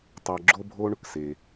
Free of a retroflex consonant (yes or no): no